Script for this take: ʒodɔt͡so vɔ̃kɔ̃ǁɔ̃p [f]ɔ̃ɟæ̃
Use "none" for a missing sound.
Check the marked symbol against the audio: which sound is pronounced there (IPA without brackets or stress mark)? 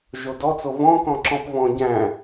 v